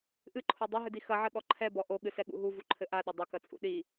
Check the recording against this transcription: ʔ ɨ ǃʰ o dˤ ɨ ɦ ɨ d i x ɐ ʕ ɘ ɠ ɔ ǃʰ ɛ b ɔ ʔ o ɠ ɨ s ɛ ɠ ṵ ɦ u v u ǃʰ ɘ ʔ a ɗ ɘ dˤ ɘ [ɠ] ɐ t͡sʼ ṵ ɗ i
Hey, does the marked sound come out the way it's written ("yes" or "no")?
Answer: no